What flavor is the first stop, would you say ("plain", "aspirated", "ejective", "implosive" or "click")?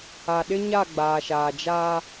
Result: implosive